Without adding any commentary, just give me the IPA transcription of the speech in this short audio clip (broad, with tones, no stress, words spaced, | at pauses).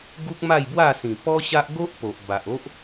ɡu˦k̚ma˥˧jbwa˥˧ sĩ˨˩pɔ˦ɕa˦ʔ ɡo˦ʔ po˨ʔba˨ʔo˦ʔ